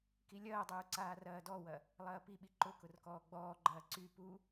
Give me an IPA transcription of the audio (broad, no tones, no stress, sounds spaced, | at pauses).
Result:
k i lʲ ɐː dˤ uː ǀ aː r ɐː d ɔ w ɐ | lˠ ɐː p i ɓ i ǃ ʊ k ʊ r k ɔː ɡ͡b ɔː ɡ͡ǃ ɐː ǀ y p u